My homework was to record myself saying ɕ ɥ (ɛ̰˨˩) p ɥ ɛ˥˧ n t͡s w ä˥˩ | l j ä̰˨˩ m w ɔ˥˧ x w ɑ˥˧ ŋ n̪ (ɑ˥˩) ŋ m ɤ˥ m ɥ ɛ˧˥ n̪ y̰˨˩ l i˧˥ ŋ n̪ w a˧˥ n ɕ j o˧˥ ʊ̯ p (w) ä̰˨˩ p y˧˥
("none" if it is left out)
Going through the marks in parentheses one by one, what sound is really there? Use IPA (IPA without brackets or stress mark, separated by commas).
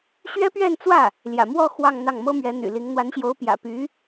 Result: ɛ˥, ɑ˥˩, j